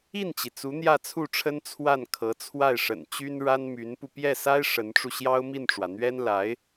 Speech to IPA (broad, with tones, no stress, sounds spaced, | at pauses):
i˥˩ n t͡ɕ i˩ t͡s u˧˥ n̪ j ä˥˧ t͡sʰ u˥˩ ʈ͡ʂʰ ə˥ n t͡sʰ w a˥˩ n kʰ ɤ˧˥ t͡sʰ w a˥˩ ɪ̯ ʂ ə̰˨˩ n t͡ɕ y˥ n ɻ a˥ n m y˧˥ n p u˧ p j ɛ˥˩ s a˥ ɪ̯ ʂ ə˧˥ n ʈ͡ʂ u˧ ɕ j ɑ˥ ʊ̯ m i˥˩ n ʈ͡ʂ w ä˩ n̪ ɥ ɛ˥ n l a˧˥ ɪ̯